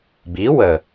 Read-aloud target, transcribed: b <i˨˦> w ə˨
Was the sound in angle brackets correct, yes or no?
yes